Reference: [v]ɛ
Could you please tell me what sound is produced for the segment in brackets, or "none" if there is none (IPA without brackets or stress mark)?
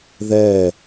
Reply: ð